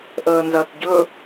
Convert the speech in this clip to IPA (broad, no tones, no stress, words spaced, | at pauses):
ʔəːnzɐːtɟɵ